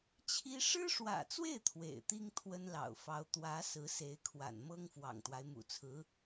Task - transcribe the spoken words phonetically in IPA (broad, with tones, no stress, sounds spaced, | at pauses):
t͡ɕʰ i˥ ʂ ɻ̩˥ ʂ w ä̰˨˩ t͡s w e˥˩ ɪ̯ t̪ʰ w ḛ˨˩ ɪ̯ t̪ i˥ ŋ t̪ʰ w ə˥ n l ɑ̰˨˩ ʊ̯ f ɑ˧˥ ʊ̯ t̪ w ä˧˥ s ɹ̩˧˥ s e˧˥ ɪ̯ kʰ w a̰˨˩ n m ɤ˥ ŋ f w ɑ̰˨˩ ŋ t̪ w a˦ ɪ̯ m ṵ˨˩ t͡sʰ ɹ̩˧˥